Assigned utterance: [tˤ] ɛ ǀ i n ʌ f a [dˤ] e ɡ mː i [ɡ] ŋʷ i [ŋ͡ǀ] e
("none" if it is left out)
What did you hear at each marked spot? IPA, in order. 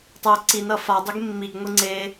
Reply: tˤ, dˤ, ɡ, ŋ͡ǀ

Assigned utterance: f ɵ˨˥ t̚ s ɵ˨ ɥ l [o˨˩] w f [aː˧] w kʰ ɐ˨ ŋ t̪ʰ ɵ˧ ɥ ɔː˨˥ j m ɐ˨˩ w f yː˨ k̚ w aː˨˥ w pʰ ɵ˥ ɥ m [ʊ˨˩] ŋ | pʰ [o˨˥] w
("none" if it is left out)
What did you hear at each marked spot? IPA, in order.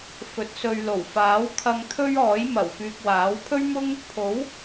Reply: o˨˩, aː˨˥, ʊ˥, o˨˥

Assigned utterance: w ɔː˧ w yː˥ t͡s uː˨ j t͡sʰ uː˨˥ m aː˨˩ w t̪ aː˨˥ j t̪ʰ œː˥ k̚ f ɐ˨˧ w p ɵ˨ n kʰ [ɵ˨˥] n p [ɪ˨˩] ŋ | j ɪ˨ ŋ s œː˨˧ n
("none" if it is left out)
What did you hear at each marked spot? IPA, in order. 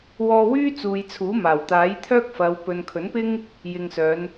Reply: ɵ˨˥, ɪ˥

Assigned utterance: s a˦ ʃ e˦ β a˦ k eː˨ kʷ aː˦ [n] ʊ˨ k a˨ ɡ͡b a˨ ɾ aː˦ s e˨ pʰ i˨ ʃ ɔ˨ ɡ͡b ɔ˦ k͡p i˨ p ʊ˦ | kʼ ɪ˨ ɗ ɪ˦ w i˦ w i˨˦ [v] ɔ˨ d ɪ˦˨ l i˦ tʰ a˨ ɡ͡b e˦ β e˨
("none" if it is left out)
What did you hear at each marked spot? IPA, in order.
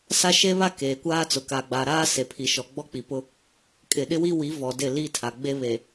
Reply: t͡s, v

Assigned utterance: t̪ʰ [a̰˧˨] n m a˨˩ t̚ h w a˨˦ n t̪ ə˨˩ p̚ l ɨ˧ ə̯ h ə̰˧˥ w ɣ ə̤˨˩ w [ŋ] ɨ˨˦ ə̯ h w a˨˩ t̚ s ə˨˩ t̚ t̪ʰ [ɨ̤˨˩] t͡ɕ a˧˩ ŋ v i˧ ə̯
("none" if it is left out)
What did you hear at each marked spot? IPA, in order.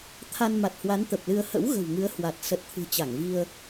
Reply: a˧, ŋ, ɨ̤˨˩

